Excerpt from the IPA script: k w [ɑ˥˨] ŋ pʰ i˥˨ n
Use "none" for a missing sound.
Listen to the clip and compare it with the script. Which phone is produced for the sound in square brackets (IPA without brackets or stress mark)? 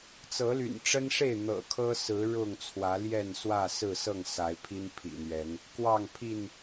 ɑ˥˨